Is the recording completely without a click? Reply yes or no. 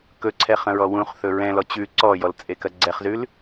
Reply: no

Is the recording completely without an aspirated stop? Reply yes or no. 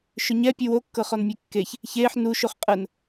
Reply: yes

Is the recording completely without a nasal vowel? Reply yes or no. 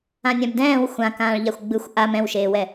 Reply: no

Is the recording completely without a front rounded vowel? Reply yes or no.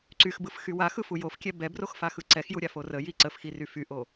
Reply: no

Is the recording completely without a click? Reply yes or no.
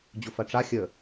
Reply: yes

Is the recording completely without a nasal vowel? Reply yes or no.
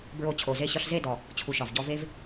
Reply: yes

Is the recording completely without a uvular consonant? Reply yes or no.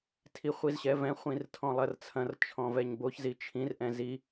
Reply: no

